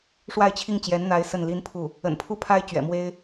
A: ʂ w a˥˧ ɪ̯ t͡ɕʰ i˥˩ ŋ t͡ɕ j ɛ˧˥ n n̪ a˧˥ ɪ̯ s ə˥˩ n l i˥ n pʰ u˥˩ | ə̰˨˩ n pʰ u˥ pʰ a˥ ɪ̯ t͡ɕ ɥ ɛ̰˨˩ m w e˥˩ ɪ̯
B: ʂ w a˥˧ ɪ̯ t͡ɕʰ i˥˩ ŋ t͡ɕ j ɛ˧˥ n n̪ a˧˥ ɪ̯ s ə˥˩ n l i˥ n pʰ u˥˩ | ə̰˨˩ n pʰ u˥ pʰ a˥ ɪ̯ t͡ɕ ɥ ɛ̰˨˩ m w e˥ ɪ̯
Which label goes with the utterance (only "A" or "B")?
B